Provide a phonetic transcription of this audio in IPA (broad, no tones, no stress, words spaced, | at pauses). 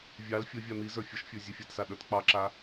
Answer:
vʲɑl fʲə vʲan̪izə˞ fʲəʃfʲə˞ zʲə˞fʲatsa ɗə˞tk͡pɑǁa